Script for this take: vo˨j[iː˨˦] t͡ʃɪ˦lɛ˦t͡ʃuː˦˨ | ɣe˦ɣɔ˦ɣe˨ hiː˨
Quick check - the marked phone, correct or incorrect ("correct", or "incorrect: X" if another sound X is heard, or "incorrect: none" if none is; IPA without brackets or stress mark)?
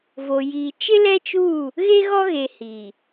incorrect: iː˨